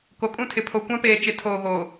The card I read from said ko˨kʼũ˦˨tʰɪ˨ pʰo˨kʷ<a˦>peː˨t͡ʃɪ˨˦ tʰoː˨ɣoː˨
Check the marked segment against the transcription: incorrect: ã˦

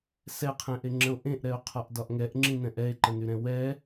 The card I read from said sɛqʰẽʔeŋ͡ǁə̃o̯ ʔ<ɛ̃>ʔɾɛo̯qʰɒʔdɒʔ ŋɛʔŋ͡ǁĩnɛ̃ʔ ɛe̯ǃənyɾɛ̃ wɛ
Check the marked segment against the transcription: incorrect: ẽ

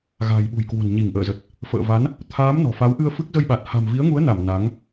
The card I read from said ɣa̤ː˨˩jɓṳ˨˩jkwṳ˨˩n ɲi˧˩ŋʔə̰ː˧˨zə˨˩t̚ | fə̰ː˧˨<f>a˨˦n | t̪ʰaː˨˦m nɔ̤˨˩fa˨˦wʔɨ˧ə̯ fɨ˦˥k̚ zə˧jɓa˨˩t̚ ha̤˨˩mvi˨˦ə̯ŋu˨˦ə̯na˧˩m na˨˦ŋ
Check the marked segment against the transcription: incorrect: v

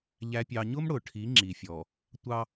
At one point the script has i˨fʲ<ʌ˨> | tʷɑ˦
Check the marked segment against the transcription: incorrect: ɔ˨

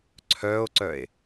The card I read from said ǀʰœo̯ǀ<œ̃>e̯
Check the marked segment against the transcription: incorrect: œ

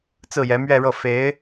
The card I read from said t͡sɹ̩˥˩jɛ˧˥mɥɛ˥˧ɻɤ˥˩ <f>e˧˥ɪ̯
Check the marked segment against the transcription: correct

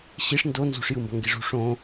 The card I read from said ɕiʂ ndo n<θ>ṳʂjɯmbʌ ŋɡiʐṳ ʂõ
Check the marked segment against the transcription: incorrect: z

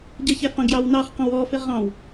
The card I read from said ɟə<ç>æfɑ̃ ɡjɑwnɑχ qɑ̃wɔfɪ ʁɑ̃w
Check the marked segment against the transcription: correct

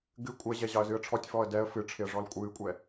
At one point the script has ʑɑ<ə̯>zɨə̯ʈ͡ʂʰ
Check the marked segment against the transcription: correct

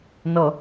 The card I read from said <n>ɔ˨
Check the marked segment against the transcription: correct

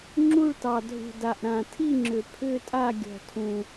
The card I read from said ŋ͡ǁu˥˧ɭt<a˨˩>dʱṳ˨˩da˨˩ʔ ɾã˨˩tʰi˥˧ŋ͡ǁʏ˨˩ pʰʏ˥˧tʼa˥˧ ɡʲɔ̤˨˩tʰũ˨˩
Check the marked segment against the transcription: incorrect: ɑ˨˩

